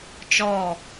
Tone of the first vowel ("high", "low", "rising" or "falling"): falling